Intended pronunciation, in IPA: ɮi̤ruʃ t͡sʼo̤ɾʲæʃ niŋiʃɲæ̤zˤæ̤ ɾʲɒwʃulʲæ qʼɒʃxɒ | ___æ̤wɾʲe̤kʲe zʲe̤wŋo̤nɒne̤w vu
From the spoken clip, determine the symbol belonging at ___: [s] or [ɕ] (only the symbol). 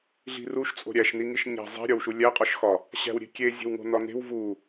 ɕ